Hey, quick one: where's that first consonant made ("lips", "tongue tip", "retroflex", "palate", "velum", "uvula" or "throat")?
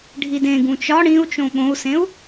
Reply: retroflex